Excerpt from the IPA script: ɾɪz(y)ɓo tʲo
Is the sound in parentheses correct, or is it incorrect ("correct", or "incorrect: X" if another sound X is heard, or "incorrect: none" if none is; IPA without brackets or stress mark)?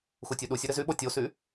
correct